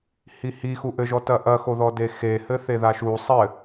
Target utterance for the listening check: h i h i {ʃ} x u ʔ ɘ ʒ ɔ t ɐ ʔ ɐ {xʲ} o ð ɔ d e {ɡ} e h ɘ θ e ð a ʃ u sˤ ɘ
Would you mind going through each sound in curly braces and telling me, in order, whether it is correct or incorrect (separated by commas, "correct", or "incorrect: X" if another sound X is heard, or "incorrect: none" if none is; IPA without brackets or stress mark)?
incorrect: none, incorrect: x, incorrect: x